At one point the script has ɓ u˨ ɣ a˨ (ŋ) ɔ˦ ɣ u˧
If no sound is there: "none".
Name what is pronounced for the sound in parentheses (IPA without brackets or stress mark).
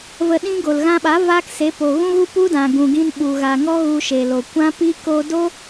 ŋ